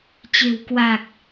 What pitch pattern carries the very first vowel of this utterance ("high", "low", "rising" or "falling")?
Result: low